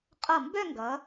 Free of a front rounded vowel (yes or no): no